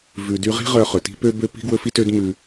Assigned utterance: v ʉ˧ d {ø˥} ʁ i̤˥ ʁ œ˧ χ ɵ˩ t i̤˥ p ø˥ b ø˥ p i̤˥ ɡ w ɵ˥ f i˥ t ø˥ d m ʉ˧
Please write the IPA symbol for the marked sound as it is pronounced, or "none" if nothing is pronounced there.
y˥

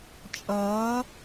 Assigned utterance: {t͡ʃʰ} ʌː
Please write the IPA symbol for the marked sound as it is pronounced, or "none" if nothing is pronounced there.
t͡ʃʼ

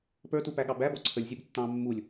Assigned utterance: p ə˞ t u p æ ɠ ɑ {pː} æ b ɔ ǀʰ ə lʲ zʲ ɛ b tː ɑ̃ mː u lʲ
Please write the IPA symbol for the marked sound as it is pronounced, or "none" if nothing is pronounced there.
b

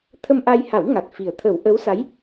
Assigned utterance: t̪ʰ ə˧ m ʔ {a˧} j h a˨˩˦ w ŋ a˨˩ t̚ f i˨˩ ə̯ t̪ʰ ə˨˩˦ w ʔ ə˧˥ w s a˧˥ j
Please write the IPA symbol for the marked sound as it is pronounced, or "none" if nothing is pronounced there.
a˧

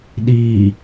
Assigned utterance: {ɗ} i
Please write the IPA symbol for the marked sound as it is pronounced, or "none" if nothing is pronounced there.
ɗ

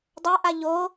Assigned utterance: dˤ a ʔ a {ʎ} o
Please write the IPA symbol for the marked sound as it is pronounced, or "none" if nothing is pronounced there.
ʎ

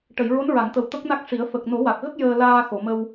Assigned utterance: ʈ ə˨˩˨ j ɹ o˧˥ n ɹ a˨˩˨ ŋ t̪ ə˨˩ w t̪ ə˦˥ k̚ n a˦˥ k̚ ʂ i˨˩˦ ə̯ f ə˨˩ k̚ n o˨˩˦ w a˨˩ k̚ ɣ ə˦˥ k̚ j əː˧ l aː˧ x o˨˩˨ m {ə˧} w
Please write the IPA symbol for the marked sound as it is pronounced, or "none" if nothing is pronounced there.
ə˧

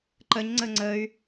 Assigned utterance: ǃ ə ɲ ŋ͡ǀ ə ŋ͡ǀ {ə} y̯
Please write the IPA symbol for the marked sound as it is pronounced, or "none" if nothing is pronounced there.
ə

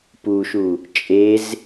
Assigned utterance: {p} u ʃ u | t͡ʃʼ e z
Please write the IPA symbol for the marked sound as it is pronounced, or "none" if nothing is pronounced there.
p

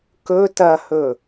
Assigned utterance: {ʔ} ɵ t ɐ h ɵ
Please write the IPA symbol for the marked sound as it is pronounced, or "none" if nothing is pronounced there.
k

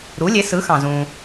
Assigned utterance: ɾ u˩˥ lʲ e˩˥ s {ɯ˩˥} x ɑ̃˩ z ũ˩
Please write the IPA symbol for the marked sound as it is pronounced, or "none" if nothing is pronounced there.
ɯ˩˥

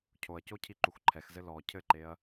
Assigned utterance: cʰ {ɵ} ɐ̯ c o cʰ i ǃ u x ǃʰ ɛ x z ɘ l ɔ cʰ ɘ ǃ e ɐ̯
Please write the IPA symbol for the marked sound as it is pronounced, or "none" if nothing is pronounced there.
o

